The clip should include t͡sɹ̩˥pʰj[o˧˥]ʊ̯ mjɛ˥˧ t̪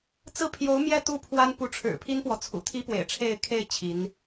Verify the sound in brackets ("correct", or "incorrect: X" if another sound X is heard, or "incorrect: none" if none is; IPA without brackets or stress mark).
correct